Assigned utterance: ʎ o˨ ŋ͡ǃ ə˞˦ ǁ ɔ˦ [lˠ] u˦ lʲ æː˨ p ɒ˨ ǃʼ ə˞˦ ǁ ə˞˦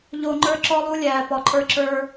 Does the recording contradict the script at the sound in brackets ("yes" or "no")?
no